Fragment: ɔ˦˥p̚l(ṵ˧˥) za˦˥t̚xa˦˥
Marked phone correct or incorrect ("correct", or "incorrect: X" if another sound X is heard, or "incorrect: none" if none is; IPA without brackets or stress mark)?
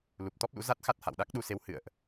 correct